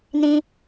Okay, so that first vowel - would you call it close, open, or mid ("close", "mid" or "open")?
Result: close